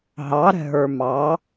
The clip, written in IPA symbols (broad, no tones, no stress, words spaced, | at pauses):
ɦɑɾɛ̤ɦə˞ mɑ